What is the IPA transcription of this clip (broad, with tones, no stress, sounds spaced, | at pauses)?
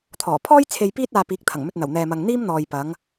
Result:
t̪ʰ ɔː˨˩ pʰ ɔː˥ j t͡sʰ e˧ j p iː˥ t̚ aː˧ p iː˨˥ k̚ t̪ʰ ɐ˨˩ ŋ m ɵ˧ t̚ n̪ ɐ˨˩ w n̪ ɛː˨ m ɐ˨ ŋ n̪ iː˥ m n̪ ɔː˨ j p ɐ˨˧ ŋ